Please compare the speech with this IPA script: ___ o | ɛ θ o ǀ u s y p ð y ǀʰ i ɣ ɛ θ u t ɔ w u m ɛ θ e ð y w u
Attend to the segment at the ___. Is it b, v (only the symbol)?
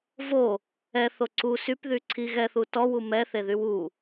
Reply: v